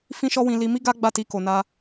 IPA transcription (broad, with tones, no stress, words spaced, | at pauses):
fĩ˦ʃɔ˦wĩ˧ li˧mi˦ɡa˦ ɡ͡ba˦˨ti˧ko˨ na˧